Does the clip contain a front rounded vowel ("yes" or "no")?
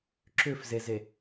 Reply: yes